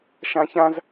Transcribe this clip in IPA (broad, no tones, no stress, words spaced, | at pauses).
ʃãçãz